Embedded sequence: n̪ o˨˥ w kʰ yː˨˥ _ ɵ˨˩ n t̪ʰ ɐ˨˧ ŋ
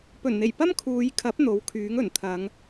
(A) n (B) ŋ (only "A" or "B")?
B